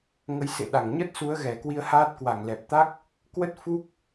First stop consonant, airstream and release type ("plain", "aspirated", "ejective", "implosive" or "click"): implosive